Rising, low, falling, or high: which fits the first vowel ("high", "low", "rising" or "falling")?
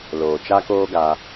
low